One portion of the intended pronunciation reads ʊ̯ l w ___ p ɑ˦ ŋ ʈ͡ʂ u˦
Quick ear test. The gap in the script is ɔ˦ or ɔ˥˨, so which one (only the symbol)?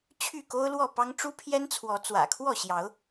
ɔ˥˨